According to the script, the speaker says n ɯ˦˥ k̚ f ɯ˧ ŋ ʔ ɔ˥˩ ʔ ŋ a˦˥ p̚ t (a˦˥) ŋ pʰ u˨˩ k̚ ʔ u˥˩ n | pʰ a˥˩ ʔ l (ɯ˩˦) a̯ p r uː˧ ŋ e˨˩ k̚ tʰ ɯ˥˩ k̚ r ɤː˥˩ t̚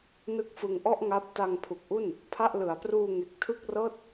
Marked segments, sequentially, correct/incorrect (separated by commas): incorrect, correct